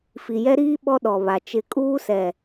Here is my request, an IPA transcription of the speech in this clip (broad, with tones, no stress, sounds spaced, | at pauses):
f i˨ j ɛ˦ ɾ iː˦ ɓ ɔ˦ ɗ ɔ˨ β a˨ t͡ʃ ɪ˦˨ kʼ uː˦ s ɛ˨